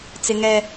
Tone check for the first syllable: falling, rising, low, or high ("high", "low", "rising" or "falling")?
high